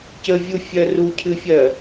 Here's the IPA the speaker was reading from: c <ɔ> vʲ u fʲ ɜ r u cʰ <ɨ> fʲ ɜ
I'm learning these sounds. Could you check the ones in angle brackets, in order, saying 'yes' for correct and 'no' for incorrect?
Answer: no, yes

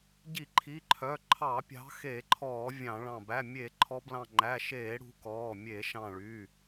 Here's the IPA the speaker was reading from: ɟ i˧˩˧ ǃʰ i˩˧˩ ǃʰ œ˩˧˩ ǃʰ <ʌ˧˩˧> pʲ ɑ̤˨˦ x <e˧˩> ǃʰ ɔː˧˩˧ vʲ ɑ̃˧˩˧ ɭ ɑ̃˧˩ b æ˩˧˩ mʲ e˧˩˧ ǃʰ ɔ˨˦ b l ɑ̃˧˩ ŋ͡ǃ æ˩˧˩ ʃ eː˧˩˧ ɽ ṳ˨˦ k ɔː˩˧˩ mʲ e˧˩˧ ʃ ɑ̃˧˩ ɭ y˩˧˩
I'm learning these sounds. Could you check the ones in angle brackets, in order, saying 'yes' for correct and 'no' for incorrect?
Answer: no, no

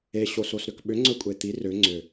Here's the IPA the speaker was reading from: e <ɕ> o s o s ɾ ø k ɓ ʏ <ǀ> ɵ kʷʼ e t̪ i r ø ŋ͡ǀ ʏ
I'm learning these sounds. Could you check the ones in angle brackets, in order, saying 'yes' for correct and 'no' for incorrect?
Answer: yes, no

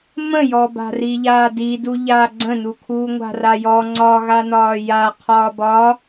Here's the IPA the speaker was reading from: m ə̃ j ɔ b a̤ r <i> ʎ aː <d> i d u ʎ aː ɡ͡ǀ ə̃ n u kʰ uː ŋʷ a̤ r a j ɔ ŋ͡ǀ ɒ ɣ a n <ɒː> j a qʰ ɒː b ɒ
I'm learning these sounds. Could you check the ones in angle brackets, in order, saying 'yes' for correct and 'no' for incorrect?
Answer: yes, yes, yes

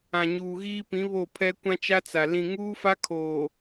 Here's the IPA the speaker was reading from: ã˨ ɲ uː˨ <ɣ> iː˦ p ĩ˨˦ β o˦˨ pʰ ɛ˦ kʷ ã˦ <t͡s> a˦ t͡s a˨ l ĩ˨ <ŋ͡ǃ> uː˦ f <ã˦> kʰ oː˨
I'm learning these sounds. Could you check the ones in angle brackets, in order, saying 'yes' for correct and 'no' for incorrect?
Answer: yes, no, no, no

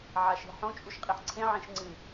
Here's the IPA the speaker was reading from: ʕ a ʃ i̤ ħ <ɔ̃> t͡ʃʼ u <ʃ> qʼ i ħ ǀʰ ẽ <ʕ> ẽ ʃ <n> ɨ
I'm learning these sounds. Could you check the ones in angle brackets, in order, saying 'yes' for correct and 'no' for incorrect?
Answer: no, yes, yes, no

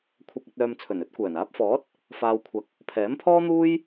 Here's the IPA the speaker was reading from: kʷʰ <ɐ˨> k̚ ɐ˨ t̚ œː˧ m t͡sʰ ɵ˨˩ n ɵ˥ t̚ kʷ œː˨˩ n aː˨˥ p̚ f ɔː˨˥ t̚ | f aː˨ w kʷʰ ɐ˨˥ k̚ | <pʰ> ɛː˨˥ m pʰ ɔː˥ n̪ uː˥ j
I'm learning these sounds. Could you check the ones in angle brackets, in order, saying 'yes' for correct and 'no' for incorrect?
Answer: yes, yes

